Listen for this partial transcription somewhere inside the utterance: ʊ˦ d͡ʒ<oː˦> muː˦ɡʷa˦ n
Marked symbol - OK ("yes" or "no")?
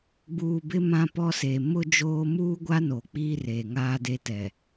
yes